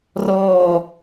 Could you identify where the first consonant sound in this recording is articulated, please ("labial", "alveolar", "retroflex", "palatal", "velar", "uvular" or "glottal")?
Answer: alveolar